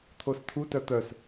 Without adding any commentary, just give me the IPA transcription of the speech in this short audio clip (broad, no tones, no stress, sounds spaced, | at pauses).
t̪ʰ o s tʰ u t œ t̪ œ s